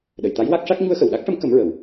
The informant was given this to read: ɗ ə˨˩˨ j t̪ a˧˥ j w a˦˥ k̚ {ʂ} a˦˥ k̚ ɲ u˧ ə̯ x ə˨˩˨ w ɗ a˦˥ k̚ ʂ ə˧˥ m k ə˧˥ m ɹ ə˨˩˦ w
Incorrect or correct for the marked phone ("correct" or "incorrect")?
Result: correct